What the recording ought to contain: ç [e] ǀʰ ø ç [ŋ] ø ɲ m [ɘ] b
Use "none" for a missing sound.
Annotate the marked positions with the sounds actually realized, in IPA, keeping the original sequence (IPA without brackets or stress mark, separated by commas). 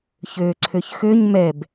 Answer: ø, x, ɛ